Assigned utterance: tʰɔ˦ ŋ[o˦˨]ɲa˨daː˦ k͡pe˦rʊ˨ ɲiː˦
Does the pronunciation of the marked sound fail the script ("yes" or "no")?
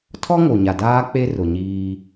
yes